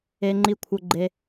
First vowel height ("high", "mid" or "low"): mid